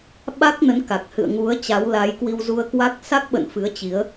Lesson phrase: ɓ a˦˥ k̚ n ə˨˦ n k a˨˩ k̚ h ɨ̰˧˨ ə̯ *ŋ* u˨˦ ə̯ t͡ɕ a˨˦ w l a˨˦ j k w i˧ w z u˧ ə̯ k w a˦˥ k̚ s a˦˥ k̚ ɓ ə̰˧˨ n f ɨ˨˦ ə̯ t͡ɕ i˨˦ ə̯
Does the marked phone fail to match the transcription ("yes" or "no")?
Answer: no